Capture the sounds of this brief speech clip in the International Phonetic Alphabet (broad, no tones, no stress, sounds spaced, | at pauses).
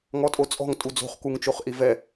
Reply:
ŋ ɔ tʼ o t͡sʼ ɔ̤ ŋ tʼ u d͡z o̤ χ k u ŋ t͡ʃ o χ ʔ i v ɛ